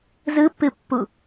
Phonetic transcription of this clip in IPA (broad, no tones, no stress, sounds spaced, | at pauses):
z ɯ pː ɨ pː u